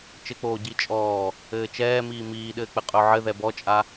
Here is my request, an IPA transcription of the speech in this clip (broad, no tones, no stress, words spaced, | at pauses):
t͡ʃɘk͡poː ɟit͡ʃʼɔː | ɘːt͡ʃɛːmiː miːɗɘːk͡pɘ qʼɵʕɘ ðɛbɔt͡ʃʼa